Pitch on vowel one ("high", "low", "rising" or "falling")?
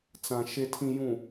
low